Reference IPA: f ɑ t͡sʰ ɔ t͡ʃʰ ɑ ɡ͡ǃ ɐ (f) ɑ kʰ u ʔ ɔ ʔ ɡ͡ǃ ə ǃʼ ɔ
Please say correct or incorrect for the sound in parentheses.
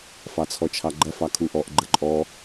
correct